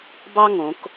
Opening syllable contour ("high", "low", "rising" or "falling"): high